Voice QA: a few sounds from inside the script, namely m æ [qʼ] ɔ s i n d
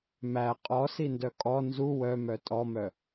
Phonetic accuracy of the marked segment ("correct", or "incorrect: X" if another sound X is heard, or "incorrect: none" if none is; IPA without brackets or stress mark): correct